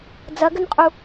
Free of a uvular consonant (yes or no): no